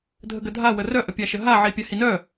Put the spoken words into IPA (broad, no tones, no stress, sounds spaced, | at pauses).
dʱ ə ɡ ə dʱ a w ə r œ ʔ ə pʲ a ʃ ə ɦ a ʕ i pʲ a h i n œ